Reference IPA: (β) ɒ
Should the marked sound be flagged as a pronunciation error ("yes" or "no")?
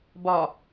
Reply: yes